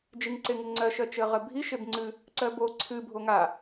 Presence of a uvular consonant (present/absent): present